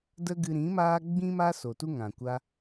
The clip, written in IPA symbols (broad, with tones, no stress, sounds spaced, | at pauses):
d ə˦ ɡ ɨ˧ ɾ ĩ˨˦ m aː˦ ɡ͡b ĩ˦ m a˦ s o˨ t u˦ ŋ ã˨ kʷ a˦